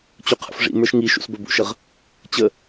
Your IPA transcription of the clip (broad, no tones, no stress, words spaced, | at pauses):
t͡ɕuqʰə̰fʐḭ mə˞ʃŋiʃṵs bə˞bṵʃəʁ | t͡ɕə